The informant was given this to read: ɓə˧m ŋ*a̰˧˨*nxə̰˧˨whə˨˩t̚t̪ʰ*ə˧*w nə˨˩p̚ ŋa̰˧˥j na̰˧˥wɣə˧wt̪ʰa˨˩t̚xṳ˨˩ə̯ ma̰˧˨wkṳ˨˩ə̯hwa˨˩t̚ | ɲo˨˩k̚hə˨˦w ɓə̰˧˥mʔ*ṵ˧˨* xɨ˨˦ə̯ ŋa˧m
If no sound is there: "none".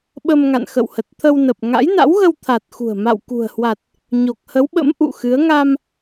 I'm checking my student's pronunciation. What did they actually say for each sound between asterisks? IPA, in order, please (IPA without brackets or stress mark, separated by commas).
a̰˧˨, ə˧, ṵ˧˨